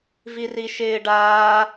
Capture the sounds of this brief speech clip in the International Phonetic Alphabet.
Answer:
v i r i ʃ ɪː ɖ aː

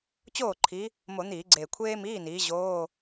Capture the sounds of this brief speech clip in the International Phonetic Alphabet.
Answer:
t͡ɕ oː˥˩ ǃʰ i˨˦ | m o˧˩˧ n̪ iː˧˩˧ ɡ͡ǀ eː˨˩ kʷʰ eː˥ m iː˧˥˧ n iː˨˦ ʑ oː˧˥˧

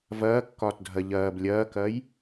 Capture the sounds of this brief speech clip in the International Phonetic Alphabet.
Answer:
v ɐː kː ɒː t dʱ ɐ ʎ ɐː b lʲ ɐː k ɐː j

